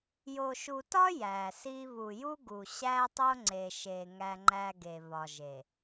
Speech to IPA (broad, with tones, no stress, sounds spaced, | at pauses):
j o˨ ʃ u˨ t ɒ˦ j æ˨ s i˦ β u˨ j u˦ ɡ u˨ ɕ æ˦ tˤ o˦ ŋ͡ǀ e˨ ʃ e˨ ŋ æ˦ ŋ͡ǃ æ˦ ɡ e˨ β ɒ˨ ʒ e˨